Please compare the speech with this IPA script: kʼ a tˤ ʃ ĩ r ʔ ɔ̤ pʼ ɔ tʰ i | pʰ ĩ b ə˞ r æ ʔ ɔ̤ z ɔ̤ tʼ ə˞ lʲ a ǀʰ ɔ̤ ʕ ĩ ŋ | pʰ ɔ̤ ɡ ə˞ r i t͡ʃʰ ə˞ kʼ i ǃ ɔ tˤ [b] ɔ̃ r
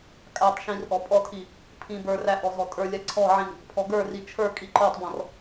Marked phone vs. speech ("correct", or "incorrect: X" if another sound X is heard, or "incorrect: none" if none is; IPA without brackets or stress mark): correct